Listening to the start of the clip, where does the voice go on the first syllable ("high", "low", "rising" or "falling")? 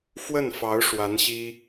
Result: falling